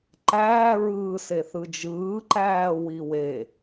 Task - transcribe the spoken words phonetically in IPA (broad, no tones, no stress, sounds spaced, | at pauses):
ǃ æː ɹ ɯː s e θ ɯ d͡ʒ ɯː ǃ æː w i w e